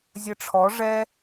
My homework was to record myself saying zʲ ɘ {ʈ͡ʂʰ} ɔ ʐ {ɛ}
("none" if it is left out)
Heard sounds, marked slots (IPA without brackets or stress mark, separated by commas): ʈ͡ʂʰ, ɛ